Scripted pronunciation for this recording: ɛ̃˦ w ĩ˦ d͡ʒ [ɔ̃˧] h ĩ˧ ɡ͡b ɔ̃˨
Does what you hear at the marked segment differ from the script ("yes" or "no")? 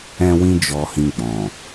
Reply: yes